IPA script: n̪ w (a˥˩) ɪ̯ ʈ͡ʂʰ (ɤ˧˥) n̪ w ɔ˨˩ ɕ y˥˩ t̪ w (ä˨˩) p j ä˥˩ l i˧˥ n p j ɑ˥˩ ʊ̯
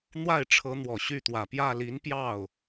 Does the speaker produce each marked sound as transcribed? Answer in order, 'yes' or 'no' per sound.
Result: yes, yes, yes

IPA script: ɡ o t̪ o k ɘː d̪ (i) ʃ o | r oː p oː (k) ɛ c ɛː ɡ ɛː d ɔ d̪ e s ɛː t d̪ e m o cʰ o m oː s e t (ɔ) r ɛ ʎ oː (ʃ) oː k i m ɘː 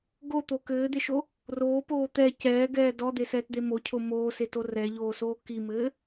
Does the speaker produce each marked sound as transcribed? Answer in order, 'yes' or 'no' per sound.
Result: no, no, no, no

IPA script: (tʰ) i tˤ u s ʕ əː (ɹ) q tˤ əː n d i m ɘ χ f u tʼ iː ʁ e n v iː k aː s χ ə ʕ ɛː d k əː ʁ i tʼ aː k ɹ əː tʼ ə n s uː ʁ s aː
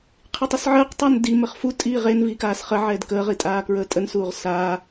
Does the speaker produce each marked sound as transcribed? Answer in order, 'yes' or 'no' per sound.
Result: no, no

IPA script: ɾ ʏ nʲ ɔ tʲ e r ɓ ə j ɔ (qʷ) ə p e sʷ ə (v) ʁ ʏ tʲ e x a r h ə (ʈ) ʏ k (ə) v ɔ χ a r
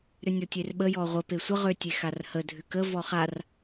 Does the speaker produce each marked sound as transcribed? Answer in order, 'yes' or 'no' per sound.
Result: no, no, no, yes

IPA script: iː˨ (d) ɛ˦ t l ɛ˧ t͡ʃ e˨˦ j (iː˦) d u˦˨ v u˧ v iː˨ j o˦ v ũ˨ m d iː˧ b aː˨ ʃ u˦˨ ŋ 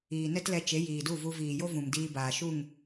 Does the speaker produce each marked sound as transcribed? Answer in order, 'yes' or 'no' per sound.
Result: no, no

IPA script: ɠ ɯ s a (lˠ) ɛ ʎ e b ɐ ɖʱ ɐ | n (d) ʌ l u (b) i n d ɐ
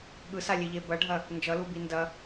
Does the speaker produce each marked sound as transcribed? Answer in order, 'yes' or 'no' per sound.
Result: no, no, yes

